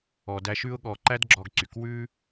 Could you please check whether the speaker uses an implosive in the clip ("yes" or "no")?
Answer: yes